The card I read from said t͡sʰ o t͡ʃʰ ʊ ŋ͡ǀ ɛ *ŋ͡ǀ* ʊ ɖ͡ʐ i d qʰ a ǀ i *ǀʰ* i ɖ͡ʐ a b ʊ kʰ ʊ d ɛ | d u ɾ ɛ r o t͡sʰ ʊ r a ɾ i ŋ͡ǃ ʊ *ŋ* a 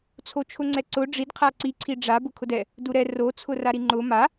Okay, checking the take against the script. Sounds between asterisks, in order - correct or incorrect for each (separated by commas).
incorrect, correct, incorrect